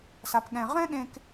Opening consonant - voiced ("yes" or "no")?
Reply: no